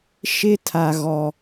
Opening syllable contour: high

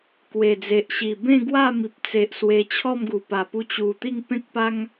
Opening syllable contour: low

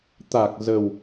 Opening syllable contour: low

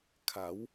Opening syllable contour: rising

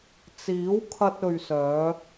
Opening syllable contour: rising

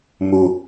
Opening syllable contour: low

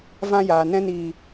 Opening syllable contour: high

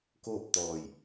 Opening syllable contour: falling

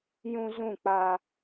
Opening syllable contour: high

